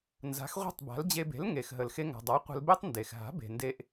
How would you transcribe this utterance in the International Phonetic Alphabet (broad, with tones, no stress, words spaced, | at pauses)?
nza̤˩˥xʁʷe̤˥˩tˤba̤˩˥l d͡ʑe˧be̤˩˥lŋe˩xɦə˩l xe˧ŋa̤˩dˤa˩˥ qʷə̤˧lbe˥tˤ nde˩xɦa̤˩˥be̤˩ nde˧ʔ